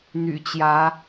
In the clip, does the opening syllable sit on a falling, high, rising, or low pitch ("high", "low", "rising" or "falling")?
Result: low